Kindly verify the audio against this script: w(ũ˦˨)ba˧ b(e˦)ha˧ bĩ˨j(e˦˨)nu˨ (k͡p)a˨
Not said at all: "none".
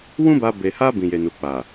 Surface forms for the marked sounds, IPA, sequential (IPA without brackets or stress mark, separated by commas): ũ˦, e˨, e˨, k͡p